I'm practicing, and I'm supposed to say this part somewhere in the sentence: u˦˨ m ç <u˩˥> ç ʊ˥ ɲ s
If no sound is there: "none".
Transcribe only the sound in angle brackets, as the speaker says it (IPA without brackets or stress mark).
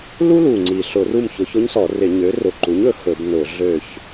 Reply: ʊ˩˥